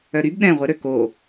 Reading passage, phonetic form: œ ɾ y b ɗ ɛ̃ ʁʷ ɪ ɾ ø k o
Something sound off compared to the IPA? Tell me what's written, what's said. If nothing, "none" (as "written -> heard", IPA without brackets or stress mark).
none